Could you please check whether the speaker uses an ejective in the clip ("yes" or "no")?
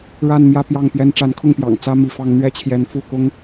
no